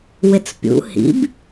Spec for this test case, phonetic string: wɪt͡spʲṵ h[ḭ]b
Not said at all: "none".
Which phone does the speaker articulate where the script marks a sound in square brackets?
ḭ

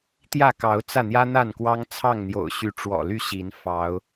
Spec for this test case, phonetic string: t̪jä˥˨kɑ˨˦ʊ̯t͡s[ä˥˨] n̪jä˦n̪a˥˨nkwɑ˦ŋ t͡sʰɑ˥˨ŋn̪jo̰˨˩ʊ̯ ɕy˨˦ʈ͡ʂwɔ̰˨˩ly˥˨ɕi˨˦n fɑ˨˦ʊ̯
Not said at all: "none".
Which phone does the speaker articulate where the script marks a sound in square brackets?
ä˥˨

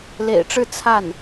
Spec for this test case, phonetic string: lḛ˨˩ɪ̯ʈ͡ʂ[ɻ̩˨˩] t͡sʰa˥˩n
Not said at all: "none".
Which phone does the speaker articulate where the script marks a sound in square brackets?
ɻ̩˥˧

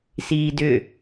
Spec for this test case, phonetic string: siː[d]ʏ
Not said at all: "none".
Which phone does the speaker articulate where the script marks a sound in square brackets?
d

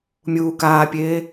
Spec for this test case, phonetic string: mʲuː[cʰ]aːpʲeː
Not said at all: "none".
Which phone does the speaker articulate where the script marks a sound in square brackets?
k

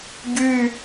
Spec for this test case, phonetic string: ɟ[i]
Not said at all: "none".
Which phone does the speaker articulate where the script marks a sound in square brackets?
y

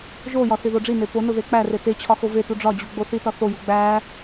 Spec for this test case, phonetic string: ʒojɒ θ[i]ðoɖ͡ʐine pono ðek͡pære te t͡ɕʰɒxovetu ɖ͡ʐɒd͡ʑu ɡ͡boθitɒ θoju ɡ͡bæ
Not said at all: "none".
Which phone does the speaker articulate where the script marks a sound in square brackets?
i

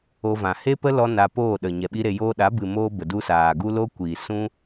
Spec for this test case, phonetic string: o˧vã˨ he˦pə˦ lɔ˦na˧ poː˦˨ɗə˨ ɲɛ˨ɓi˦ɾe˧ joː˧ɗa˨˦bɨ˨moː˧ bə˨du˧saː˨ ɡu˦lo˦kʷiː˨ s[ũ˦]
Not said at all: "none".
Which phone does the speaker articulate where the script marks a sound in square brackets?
ũ˦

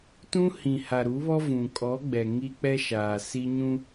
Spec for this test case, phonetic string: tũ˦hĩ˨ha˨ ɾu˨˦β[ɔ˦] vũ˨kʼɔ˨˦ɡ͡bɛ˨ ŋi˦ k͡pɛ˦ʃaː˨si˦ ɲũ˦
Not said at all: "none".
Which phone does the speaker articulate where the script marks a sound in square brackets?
ɔ˦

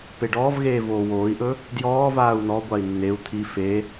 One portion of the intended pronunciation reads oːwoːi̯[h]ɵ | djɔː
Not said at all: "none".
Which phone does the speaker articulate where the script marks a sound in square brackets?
ʔ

